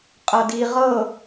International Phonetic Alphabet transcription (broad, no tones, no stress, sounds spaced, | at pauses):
qʼ ɤ d i ʁ ɤ